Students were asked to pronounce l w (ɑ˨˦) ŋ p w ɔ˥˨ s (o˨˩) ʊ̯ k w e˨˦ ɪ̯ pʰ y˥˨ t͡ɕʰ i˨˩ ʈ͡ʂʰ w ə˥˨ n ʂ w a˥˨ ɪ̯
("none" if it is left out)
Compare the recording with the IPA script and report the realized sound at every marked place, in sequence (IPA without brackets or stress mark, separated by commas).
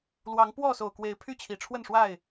ɑ˨˦, o˨˩